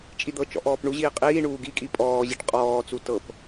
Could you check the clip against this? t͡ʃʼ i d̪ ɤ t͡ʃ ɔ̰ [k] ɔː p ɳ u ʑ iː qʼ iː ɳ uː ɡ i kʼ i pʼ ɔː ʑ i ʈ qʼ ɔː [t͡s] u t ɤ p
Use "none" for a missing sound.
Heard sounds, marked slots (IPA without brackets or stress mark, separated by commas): ʔ, t͡s